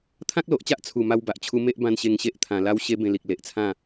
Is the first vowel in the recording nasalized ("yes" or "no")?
yes